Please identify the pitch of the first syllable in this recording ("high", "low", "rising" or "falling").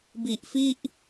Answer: low